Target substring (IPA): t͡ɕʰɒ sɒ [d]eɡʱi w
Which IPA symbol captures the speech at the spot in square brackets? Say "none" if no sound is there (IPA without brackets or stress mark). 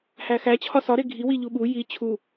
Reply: ɾ